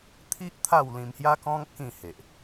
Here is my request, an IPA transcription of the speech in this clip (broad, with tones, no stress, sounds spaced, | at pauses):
t̪ʰ i˦ ʔ t̪ʰ a˥˧ w l ĩ˧ m h j a˦ k ɔ̃˦ ŋ k ĩ˥˧ h e˨ ʔ